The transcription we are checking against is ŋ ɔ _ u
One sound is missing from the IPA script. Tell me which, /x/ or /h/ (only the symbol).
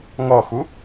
x